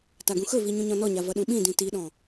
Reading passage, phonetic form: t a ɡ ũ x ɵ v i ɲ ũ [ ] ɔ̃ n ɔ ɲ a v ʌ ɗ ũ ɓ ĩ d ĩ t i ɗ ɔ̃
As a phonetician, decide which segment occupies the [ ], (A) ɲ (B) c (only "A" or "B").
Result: A